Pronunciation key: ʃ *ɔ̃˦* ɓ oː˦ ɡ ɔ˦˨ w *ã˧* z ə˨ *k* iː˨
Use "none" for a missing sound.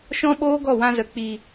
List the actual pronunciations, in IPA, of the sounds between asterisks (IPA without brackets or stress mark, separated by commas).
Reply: ɔ̃˦, ã˧, k͡p